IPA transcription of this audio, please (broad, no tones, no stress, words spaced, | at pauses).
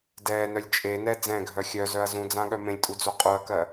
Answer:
dɛːnœlʲ t͡ʃʼenɛ d͡zɛ̃ɡʱœ xʲœzœɐ̯ zũd͡zãɠœ mẽlʲtʼud͡zo qʼuɐ̯kɜ